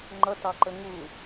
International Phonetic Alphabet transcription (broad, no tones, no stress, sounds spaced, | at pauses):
ŋ͡ǃ ʌ t ɑ ǃ ə ŋ u